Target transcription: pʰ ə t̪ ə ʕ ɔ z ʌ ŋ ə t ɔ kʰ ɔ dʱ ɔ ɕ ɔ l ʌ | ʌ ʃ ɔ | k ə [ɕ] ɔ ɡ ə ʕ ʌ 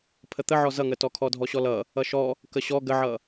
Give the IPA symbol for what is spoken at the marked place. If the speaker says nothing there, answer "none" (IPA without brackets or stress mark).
ɕ